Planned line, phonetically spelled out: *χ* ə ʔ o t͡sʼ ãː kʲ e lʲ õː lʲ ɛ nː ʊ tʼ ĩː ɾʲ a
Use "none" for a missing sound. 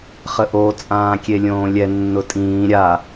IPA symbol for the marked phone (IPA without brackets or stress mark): χ